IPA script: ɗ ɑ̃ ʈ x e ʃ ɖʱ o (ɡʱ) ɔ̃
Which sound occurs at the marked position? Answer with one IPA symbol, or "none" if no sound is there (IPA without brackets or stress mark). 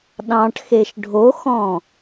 x